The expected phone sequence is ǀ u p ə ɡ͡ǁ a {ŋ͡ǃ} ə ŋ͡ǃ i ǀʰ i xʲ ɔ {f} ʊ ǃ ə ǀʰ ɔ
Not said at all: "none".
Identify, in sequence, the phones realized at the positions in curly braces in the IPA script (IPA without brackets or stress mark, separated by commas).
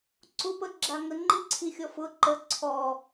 ŋ, f